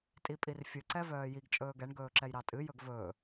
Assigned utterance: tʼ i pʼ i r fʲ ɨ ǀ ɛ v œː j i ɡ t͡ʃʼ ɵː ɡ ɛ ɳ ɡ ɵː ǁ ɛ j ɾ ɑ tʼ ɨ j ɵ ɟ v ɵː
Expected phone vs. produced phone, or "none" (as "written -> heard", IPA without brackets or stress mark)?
ɟ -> ɡ